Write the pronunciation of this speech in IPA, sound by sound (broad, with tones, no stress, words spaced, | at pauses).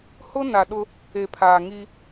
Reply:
hʊ˦ na˨ɗʊ˦ | e˨pʰaː˨ŋi˦